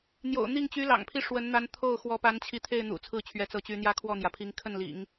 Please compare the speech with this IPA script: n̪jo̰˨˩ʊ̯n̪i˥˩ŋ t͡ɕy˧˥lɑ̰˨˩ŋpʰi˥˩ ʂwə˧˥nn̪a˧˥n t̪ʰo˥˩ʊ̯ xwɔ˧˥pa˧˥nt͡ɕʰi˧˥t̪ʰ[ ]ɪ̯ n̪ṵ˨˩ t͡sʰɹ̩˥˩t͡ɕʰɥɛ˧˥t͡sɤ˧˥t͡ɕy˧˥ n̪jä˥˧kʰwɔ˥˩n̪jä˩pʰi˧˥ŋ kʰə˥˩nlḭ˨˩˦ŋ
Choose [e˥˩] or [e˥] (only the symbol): e˥˩